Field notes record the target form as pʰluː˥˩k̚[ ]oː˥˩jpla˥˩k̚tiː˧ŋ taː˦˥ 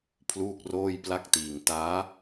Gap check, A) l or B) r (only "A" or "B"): B